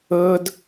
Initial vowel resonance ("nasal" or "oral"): oral